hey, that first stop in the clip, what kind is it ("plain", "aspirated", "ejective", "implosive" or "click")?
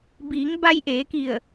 plain